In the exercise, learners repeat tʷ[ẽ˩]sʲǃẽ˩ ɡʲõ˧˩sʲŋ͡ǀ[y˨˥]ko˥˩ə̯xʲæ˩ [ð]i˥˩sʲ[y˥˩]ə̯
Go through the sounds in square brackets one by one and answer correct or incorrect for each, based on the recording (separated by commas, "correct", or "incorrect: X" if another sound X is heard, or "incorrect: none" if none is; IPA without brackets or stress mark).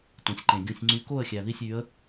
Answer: correct, correct, correct, incorrect: y˨˥